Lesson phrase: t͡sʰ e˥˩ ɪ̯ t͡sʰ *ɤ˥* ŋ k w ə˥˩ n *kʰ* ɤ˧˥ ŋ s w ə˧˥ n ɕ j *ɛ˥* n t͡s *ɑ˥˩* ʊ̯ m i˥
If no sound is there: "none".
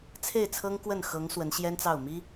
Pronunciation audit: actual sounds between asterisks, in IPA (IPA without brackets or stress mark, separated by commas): ɤ˥, x, ɛ˥, ɑ˥˩